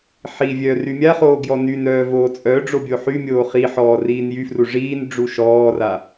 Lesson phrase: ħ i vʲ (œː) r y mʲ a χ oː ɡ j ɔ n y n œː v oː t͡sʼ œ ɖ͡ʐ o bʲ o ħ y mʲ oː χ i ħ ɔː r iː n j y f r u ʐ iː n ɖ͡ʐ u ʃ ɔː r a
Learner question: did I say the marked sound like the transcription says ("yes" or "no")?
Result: yes